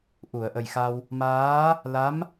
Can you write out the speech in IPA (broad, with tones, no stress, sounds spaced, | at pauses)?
ʔ u˨˩˨ ə̯ ʔ ə˨˩ j x a˧ w | m aː˧˥ | l a˧˥ m